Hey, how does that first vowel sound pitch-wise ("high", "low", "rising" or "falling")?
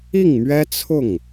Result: falling